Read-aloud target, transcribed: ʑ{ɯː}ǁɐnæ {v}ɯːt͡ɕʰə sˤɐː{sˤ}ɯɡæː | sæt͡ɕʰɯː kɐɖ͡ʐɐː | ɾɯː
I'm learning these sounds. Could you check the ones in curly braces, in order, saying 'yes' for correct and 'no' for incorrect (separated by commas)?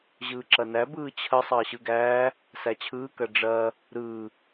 yes, no, no